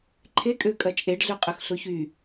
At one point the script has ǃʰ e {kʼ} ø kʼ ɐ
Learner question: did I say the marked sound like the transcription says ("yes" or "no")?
yes